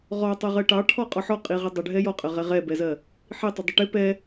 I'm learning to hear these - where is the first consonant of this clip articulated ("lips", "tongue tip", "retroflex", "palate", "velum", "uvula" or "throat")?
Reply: uvula